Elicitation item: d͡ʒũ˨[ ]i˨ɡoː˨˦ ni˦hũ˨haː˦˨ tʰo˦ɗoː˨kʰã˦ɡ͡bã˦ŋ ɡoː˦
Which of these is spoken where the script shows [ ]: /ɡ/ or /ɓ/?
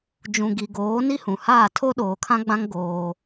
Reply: ɡ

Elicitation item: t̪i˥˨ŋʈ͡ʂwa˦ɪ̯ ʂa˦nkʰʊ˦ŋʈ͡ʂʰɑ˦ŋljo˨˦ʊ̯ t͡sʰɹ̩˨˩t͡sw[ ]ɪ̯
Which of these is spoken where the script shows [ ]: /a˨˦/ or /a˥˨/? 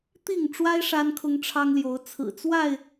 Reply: a˥˨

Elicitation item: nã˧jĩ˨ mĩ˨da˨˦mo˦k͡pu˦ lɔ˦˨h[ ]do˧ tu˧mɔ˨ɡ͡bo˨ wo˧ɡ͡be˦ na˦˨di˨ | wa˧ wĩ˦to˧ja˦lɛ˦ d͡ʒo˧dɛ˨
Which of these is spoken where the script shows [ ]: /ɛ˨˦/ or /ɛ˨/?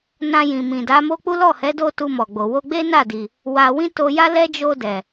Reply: ɛ˨˦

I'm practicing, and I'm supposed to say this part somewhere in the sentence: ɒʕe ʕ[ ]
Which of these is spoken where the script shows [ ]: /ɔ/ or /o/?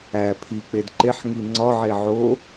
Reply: o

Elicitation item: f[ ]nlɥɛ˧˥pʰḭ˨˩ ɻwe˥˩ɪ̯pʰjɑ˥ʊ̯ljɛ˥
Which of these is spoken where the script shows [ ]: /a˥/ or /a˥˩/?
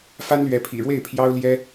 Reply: a˥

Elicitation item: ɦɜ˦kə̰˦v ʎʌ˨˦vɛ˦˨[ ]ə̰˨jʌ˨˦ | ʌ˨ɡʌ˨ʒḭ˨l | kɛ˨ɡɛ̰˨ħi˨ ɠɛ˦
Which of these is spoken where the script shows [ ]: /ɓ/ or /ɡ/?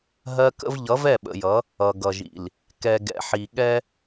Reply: ɓ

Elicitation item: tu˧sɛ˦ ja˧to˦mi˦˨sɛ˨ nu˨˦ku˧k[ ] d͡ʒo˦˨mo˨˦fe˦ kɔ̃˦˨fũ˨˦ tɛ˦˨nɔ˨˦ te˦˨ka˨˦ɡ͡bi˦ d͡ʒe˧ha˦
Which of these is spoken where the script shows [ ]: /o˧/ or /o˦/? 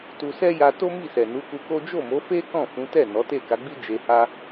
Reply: o˦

